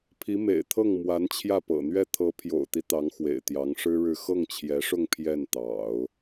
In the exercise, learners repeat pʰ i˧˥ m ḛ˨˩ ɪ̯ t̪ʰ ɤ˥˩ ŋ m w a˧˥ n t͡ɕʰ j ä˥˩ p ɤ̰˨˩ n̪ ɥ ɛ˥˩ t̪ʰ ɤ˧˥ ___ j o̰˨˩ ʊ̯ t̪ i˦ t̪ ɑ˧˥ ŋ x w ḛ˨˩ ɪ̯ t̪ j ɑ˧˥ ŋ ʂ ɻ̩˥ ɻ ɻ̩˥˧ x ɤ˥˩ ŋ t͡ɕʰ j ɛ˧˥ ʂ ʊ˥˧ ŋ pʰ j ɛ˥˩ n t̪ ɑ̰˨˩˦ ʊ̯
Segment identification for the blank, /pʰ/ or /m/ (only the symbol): pʰ